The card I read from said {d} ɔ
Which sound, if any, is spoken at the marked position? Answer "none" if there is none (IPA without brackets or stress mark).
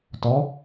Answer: t